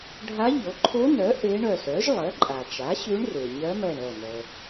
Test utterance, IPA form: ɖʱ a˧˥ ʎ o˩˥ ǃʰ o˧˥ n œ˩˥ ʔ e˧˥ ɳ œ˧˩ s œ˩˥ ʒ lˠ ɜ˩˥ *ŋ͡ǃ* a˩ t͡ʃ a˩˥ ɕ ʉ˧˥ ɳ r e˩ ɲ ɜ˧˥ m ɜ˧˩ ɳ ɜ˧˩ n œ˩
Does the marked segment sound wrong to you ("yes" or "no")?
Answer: yes